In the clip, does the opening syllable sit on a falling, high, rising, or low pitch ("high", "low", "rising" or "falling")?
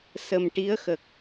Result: low